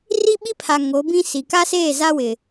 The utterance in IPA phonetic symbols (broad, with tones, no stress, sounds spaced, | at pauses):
r i˦ ɓ i˦ pʰ a˨ ŋ o˨˦ b ĩ˦ s i˨ k a˦ s eː˦˨ z a˦ w ɪ˨